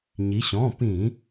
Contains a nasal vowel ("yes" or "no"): yes